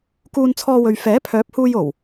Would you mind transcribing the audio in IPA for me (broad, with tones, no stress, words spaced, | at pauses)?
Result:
kuː˧nt͡sʰɔː˧wɵ˨ɥ fɛː˨˥pʰœː˨˥p̚huː˧jo˨˩w